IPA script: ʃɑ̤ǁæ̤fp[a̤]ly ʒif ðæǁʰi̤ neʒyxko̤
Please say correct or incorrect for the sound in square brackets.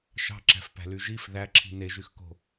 incorrect